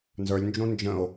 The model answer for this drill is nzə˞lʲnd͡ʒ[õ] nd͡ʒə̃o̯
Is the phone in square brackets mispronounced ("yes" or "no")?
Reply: no